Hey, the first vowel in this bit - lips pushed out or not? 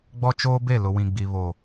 yes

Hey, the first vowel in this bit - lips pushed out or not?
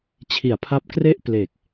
no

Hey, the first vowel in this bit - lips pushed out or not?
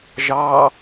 no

